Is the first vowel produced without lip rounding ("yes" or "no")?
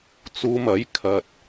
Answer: no